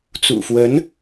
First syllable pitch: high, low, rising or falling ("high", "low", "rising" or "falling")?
low